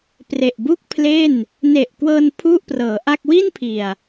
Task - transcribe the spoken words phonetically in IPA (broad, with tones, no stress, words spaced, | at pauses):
pre˨˩ʔbu˥˩k̚pʰle˥˩n | ne˨˩ʔkwɤː˧n pʰu˥˩ʔprɤː˩˦ʔa˥˩k̚ wi˥˩npʰi˨˩a̯